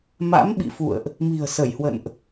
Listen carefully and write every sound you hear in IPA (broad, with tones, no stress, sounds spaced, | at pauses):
m a̰˧˥ m ɓ ḭ˧˨ f ṵ˧˨ ə̯ ʔ | m i̤˨˩ ə̯ s ə˧˩ j h w ə̰˧˨ n ʔ